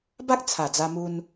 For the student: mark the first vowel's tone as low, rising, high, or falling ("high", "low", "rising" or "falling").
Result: high